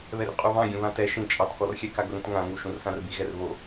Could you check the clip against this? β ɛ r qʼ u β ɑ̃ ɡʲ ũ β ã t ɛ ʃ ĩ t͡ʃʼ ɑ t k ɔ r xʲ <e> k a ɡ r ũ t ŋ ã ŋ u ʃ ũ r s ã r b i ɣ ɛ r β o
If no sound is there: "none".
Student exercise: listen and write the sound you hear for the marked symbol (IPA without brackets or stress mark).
ɛ